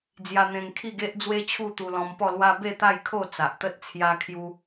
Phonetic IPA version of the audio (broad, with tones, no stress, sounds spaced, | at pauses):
d͡z j a˧ n̪ ẽ˧ ŋ kʰ i˥˧ ɡ e˦ ʔ d͡z w e˦ t͡ɕʰ u˥˧ t̪ u˧ l ɔ̃˧ m p ɔ˥˧ l w a˦ b e˥˧ t̪ a˥˧ j kʰ o˥˧ t͡s a˨ ʔ t̪ ə˦ t̚ t͡sʰ j a˧ kʰ j u˧